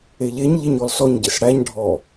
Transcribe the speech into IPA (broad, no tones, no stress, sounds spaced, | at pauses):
e ʎ e ɲ ʎ e ɲ ɔ l s ɔ ɲ ɟ e s ɽ æ ɲ ɖʱ ɔ